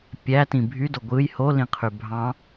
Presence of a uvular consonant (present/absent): present